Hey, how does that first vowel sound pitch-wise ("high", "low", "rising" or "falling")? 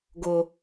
high